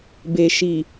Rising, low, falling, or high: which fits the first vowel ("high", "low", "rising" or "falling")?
low